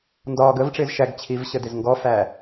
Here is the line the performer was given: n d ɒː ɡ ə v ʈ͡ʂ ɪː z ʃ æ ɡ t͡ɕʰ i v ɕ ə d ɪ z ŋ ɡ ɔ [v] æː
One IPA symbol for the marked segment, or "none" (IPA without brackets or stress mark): f